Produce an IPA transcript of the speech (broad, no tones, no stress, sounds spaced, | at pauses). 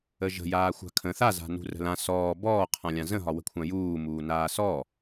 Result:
ə ʒ ə̤ j aː xʷ a̤ kʰ ə̃ θ a z a̤ n ṳ r ə̤ l ã s ɔː b ɔː qʰ ã lʲ ã z ə̃ ɦ ɒ w ə̤ kʷʰ ã j uː m uː n aː s ɔ